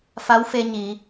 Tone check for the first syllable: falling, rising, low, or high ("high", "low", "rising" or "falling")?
rising